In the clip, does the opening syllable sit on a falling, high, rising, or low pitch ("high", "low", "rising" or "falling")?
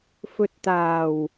low